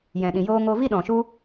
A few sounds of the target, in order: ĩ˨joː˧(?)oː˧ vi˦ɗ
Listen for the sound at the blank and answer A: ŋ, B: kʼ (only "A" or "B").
A